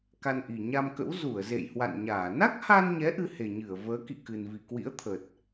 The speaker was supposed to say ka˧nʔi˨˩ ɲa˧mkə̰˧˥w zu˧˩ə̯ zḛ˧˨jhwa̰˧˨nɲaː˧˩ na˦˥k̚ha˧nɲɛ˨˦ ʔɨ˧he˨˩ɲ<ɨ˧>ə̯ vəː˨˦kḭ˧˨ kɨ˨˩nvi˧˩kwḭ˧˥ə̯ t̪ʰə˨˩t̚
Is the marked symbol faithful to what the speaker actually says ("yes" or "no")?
no